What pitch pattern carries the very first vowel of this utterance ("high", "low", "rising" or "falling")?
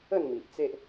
falling